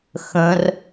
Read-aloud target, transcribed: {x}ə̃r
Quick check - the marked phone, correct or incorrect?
correct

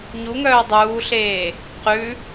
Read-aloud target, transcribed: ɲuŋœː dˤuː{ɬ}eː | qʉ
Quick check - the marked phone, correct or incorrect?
correct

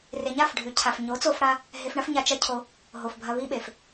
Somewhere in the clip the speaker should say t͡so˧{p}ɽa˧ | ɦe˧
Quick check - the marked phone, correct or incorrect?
incorrect: f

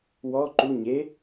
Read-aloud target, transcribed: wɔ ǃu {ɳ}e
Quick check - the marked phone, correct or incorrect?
incorrect: ɲ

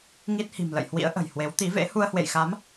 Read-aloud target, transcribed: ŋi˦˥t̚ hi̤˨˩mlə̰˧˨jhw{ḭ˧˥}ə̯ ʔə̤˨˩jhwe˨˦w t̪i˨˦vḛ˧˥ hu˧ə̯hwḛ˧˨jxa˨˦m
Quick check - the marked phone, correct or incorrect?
correct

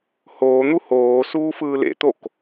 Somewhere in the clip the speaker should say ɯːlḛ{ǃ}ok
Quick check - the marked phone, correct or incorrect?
incorrect: t̪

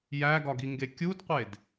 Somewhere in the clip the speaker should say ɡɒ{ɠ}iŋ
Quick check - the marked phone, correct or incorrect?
incorrect: ɡ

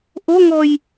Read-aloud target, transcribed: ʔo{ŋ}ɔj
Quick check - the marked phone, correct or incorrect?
correct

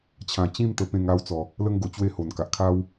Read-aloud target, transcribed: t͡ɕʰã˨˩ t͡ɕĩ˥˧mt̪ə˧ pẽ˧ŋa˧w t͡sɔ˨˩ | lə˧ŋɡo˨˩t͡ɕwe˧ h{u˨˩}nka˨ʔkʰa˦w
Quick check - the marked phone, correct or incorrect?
incorrect: o˨˩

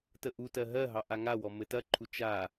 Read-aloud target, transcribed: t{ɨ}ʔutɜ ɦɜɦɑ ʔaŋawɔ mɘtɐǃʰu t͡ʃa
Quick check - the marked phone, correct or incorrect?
incorrect: ə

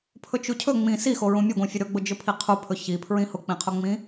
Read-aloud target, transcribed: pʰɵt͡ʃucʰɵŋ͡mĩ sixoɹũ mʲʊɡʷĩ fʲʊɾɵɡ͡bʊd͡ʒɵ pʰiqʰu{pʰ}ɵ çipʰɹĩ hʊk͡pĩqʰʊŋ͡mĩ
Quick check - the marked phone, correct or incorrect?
correct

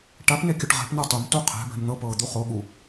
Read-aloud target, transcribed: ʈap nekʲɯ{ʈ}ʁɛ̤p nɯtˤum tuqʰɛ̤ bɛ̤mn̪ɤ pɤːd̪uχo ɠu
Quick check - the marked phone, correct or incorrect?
correct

